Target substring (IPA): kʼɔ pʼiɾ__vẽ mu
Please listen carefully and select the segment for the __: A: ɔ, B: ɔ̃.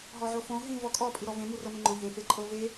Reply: A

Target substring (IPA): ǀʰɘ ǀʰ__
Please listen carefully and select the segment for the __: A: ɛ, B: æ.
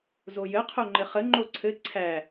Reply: B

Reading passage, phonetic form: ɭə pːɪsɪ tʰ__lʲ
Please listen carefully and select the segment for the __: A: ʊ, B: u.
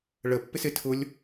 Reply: A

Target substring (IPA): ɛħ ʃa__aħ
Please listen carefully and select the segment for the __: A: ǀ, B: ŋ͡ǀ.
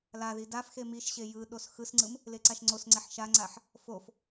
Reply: B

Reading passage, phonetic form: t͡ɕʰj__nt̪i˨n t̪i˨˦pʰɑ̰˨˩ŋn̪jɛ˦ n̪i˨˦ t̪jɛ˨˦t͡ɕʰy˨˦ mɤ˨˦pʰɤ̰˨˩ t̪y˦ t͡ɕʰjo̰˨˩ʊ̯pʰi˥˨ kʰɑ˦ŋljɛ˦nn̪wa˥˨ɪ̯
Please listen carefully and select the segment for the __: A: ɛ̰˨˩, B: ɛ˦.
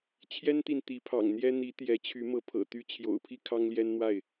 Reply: B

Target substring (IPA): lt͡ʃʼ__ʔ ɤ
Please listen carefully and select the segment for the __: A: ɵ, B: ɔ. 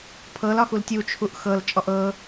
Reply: B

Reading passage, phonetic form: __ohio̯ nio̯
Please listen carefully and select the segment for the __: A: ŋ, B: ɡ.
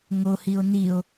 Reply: A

